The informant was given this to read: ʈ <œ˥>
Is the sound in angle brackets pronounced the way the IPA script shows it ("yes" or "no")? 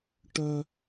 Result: yes